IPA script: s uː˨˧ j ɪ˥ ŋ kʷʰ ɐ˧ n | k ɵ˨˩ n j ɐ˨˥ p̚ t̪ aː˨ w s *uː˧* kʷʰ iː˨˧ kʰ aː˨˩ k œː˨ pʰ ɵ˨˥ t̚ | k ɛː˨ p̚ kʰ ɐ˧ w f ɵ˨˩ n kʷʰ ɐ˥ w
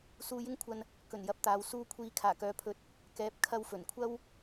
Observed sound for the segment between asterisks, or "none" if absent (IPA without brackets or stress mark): uː˧